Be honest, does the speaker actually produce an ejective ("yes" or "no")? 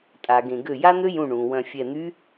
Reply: yes